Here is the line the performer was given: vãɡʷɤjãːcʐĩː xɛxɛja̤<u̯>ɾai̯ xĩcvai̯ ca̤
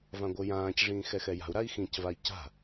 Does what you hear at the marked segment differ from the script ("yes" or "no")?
no